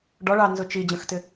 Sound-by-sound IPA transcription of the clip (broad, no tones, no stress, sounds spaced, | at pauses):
ɖ ɔ ɭ ɑ n z ʊ t͡ʃ i d͡ʑ ə̃ x t ɪ